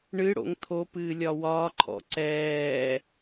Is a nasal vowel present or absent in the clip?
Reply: absent